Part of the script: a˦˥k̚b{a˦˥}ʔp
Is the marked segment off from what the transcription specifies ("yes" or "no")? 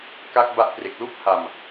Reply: no